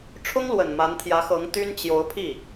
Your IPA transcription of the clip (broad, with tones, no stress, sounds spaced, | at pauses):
ʈ͡ʂʰ ʊ˥ ŋ l w ə˨˩ n m a˧˥ n t̪ʰ j ä˧˥ x ɤ˧˥ ŋ t̪ y˥ n t͡ɕ j o˧˥ ʊ̯ pʰ i˥˩